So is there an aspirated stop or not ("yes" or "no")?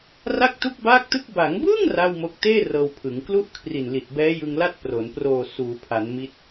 yes